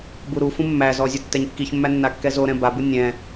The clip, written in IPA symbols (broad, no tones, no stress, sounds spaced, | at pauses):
b u ɾ u f ũ mː æ z ɔ zʲ ɔ tː ɛ ɲ kː i ç mː æ nː a kː ɛ z o ɾ ɛ̃ b a b u nʲ ɛ̃